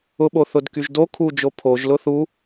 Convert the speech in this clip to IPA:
ʊ ɓ o θ ʊ d k y ʒ d o kʰ u d͡ʒ o pʰ o ʒ l ʊ θ u

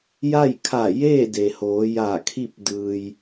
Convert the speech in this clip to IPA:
j a˥˨ j kʰ a˧˩ j eː˥˨ d e˩ h oː˩˧ j aː˧˩ kʰ i˥˨ p̚ d ɯː˩ j

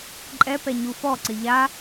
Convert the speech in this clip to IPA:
ǃʼ ɛ p ɛ ɲ u f ɔ ǀ ɪ ʎ a

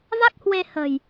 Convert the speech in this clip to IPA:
v a˦˥ k̚ h w e˧ h ə̤˨˩ j

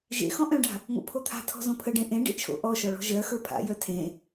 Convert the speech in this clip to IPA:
ʒ ḛ x ɔ̃ ʔ œ̃ ɖ a̤ | ŋ o̰ pʰ o t̪ʰ a̤ tʰ ɔ̤ z õ pʰ ə ɖ ẽ ʔ ẽ ɖ ḛ t͡ʃʰ o̰ ʔ ɔ ʃ ɔ ɭ ɔ̤ ʒ ɜ x ə˞ pʰ a̰ j œ tʰ ẽ

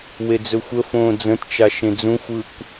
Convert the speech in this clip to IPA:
w e d͡z ɵ xʷ ə f õː d͡z ə̃ t t͡ʃ a ʃ ẽ d͡z ũ xʷ ɯː kʷ

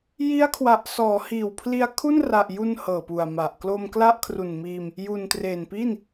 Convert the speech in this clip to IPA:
j i˦˥ a̯ kʰ w a˨˩ ʔ s ɔː˩˦ h iː˨˩ w pʰ l i˧ a̯ kʰ u˥˩ n r a˨˩ ʔ j u˧ n h ɤː˨˩ p u˨˩ a̯ m a˨˩ ʔ k l o˧ m k l a˥˩ ʔ kʰ r u˨˩ n m iː˧ m | j u˨˩ n t r e˨˩ n p i˥˩ n

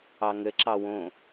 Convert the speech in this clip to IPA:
ɑ ŋ ɘ ǁ ɑ w õ

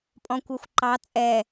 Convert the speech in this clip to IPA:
pʼ ɔ̃ kʷ æ xʷ ǃ ɑ t͡sʼ ɛ

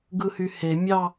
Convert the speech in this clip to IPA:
ɡ ɯ h y h e mʲ ɑ

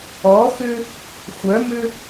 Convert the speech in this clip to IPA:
ɔ x ʏ | xʷ œ m ʏ

